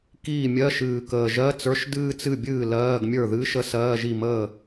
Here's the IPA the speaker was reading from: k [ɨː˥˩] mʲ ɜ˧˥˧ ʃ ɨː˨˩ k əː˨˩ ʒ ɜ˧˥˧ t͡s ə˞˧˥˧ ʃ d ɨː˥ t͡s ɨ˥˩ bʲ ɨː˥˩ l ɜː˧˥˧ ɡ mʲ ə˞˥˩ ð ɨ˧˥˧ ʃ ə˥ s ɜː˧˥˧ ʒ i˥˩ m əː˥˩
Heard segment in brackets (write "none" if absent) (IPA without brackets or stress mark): iː˥˩